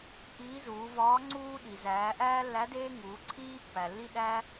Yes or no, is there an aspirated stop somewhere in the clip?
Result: yes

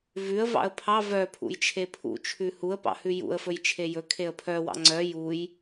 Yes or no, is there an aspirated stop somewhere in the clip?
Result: yes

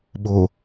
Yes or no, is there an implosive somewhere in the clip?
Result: yes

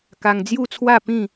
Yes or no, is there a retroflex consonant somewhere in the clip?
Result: no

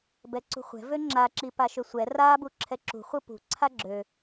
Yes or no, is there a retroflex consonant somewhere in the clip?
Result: no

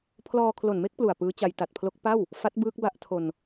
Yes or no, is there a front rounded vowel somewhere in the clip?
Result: no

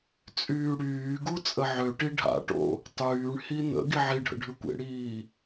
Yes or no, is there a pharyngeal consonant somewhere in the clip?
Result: yes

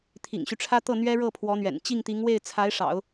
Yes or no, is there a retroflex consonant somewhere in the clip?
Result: yes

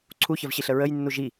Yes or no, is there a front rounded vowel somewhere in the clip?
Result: no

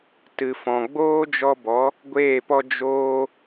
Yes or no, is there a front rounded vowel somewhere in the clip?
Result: no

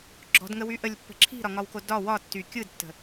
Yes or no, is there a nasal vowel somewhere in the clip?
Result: no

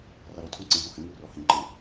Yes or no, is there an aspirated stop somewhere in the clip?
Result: yes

